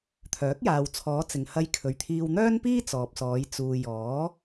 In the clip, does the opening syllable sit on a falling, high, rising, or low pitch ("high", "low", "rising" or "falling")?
rising